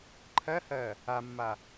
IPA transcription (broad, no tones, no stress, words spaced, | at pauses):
ǃʰɜhɜ | amːa